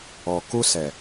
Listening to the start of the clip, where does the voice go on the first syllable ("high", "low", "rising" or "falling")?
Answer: low